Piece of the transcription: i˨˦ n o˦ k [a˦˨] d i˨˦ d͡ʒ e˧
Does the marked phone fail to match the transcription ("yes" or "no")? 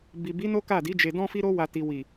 no